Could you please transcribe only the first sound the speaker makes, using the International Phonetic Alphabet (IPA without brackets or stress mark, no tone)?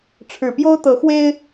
ʈ͡ʂʰ